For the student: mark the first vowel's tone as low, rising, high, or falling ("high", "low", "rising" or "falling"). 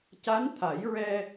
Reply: rising